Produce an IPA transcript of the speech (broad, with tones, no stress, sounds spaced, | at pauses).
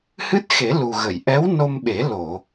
h ɨ˦˥ t̚ x e˨˩˦ l u˨˩ ɣ ə˨˩˨ j ʔ ɛ˧˥ w n o˧ m ɓ e˨˩˦ l o˨˩˨